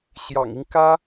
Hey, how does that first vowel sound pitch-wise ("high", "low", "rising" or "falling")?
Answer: low